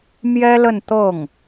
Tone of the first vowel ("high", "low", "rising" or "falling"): high